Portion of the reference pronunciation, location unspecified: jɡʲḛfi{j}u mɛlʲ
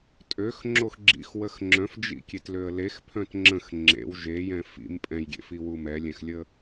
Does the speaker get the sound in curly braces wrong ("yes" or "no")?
yes